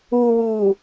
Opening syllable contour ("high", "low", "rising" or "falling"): low